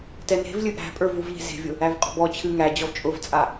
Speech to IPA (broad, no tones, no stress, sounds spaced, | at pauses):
t ɛ n e̤ v lʲ ɨ ʔ æ̤ pʼ ə˞ v u v ʎ e̤ z e̤ vʲ ʊ | æ v qʼ ɔ̤ b ɔ t͡ɕʰ ɨ ŋ æ d͡ʑ ɔ v t͡ʃʼ ʊ v t͡sʼ a